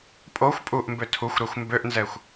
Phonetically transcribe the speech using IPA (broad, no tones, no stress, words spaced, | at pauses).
pʼoxʷ pʼuʔmbø tʰuxʷɾɛxʷ mbøʔnzɛxʷ